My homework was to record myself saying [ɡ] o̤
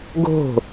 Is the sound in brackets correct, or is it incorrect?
correct